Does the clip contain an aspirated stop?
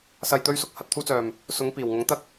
yes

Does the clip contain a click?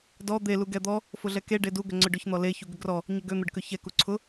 yes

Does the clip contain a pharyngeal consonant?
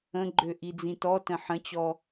yes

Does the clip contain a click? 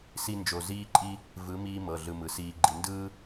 yes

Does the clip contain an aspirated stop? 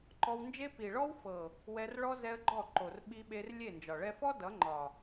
no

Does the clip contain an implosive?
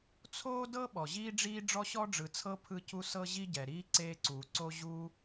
yes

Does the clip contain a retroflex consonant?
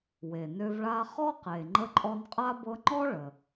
yes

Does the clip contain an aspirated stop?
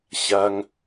no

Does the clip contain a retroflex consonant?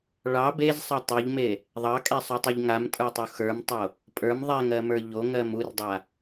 yes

